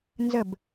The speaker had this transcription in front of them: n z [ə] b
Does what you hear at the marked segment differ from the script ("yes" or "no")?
no